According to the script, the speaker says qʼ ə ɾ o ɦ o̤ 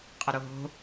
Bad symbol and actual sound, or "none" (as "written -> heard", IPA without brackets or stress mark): none